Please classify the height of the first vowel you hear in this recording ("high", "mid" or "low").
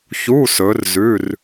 high